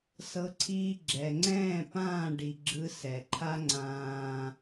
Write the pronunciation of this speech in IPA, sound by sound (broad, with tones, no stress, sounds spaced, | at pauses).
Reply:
s ɤ˦ ǀʰ iː˦ ɡ͡ǁ ɛ˨ ŋ͡ǀ ɛ̃ː˦˨ p ãː˦˨ ɖ i˨ ɡ͡ǁ ɯ˦ s ɛ˨ ǃʰ a˦ ŋ͡ǀ ãː˦